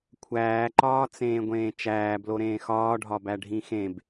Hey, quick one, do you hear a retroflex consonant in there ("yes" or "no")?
yes